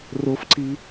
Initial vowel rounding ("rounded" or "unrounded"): rounded